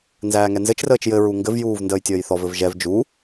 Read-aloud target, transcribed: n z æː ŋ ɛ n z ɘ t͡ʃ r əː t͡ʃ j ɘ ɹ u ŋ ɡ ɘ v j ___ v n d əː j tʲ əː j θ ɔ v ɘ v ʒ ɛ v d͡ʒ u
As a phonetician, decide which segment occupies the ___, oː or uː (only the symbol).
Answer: uː